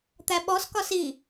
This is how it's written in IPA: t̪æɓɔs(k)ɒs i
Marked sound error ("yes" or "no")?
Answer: no